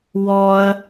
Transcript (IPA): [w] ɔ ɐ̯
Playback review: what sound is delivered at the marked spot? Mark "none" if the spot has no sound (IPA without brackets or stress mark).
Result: w